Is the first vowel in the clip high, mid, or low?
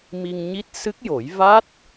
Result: high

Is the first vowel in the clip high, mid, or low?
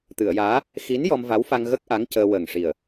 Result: high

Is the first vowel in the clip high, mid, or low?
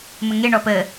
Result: mid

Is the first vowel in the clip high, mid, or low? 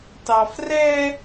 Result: low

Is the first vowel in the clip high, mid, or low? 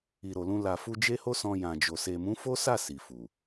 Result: high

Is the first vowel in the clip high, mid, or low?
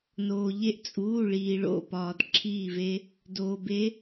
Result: mid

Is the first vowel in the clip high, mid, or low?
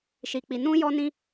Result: high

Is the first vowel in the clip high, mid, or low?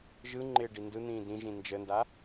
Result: high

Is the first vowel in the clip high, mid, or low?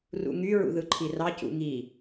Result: high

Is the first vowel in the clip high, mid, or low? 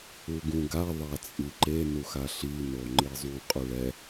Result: high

